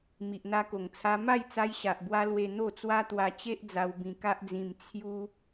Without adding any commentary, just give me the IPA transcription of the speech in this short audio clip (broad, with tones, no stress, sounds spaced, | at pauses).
m i˨ ʔ n̪ a˧ k o˨˩ ŋ t͡sʰ a˧ m a˥˧ j t͡s a˧ j ɕ a˨ ʔ b w a˧ l w e˧ n̪ o˥˧ t͡s w a˦ t̪ w a˧ t͡ɕ e˦ ʔ d͡z a˧ w b ĩ˧ k a˦ ʔ d͡z ĩ˧ m t͡sʰ j u˦